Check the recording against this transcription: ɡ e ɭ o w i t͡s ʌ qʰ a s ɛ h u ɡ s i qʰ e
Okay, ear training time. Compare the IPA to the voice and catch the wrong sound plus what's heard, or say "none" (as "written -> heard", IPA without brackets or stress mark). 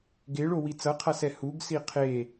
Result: none